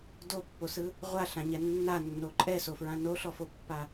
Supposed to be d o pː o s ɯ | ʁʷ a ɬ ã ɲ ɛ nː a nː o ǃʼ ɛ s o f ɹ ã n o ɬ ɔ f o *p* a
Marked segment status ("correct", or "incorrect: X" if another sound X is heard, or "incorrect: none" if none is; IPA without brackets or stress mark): incorrect: pː